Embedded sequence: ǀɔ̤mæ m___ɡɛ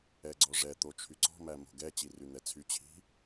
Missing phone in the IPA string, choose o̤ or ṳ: o̤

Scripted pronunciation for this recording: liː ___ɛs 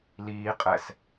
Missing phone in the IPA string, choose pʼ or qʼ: qʼ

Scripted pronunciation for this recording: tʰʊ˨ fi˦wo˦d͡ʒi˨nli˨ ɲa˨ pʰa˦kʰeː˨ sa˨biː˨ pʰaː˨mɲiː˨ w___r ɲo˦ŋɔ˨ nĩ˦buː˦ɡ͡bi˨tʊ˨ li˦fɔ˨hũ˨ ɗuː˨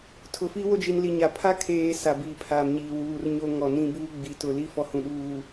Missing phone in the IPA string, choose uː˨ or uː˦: uː˨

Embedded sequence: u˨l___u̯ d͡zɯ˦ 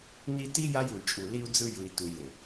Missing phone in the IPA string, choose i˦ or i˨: i˦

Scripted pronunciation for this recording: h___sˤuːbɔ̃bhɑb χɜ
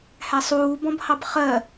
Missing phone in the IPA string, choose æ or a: æ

